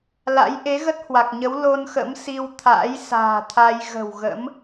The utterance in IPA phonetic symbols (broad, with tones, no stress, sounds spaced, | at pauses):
l a̰˧˥ j ʔ e˨˦ ɣ ə˦˥ t̚ h w a˨˩ k̚ ɲ ə˨˦ w l o˧ n x ə̰˧˥ m s i˧ w t̪ʰ a̰ː˧˥ j s a̤ː˨˩ t̪ʰ a˧ j ɣ ə̤˨˩ w ɣ ə̰˧˥ m